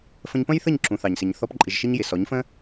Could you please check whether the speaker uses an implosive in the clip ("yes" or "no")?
no